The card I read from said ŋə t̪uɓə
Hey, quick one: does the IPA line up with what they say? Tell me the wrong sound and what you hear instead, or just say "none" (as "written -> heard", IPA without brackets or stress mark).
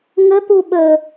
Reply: none